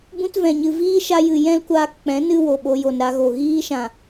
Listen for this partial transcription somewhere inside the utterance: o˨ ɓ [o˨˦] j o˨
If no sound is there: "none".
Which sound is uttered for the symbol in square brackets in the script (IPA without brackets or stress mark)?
o˧